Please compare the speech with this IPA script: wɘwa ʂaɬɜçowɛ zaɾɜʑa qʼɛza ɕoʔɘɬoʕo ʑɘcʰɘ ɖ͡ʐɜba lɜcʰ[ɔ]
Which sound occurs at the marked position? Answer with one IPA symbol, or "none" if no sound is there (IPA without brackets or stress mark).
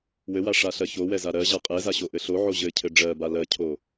o